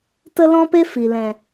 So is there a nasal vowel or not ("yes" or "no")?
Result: yes